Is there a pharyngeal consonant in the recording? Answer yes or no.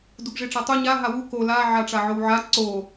yes